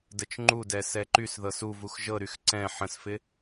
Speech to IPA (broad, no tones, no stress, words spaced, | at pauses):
dət͡ʃŋ͡ǃudɛ sɛǃysðɤs uv uxʒɤɾyx ǀɛ̃ ħə̃sfɪ